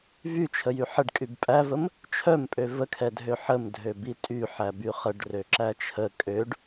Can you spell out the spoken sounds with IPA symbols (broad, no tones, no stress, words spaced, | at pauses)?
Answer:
vyt͡ʃʰəjy ħəɖkʼyb pʼævəm | t͡ʃʰœmpʼø vəkʰɛdʱø ħəmdʱøbi tʼyħæby χəɖrøǁæ t͡ʃʰə kʼøɖ